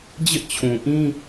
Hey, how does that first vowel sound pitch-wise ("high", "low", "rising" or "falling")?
high